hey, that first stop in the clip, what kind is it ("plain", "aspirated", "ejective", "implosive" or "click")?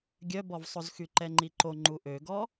plain